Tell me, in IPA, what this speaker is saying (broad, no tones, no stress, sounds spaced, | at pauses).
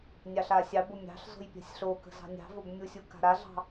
nʲ ɑ ɬ a sʲ ɑ b o mʲ ɑ̤ ɬ z o̤ j pʲ a̤ sʲ ɬ o k ə̤ z ɑ̤ nʲ ɑ̤ v o b mʲ u sʲ u k a̤ ɾ a ɮ ɑ̤